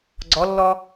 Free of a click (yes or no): no